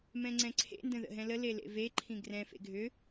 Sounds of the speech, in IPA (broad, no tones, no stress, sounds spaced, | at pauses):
m ɛ̃ ŋ͡ǀ ɛ̃ ǀʰ ḛ n d ə̃ ð ə̰ ɦ ɛ̃ l ə l e l ḛ v e ǃʰ ĩ ɡ r ɛ̃ f ḛ ɡʱ ʏ